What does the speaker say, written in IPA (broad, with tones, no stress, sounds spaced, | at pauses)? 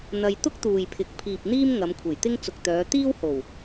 n̪ ɐ˧ j t̪ ʊ˥ k̚ t̪ uː˨ j pʰ ɪ˨˥ k̚ pʰ iː˨ p̚ n̪ iː˥ m ŋ ɐ˨˧ m kʷʰ e˨˩ j t̪ ɪ˥ ŋ t͡s ʊ˨ k̚ t̪ œː˨˧ t̪ iː˥ w h o˨˩ w